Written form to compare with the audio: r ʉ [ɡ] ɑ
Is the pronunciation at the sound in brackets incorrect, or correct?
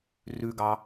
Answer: correct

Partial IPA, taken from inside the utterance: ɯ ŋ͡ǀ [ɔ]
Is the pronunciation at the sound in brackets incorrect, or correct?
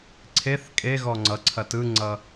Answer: incorrect: ʌ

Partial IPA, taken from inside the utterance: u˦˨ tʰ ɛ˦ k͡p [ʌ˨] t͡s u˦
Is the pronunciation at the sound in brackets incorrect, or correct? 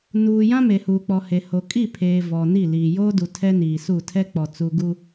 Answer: incorrect: ɔ˨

